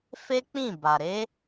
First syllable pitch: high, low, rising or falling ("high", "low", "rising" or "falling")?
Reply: high